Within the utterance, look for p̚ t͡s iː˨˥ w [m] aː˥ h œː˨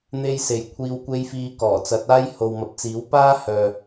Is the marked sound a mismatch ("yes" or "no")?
yes